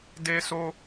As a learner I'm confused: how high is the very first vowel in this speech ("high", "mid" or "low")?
mid